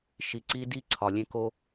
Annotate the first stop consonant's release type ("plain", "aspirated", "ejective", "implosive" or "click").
click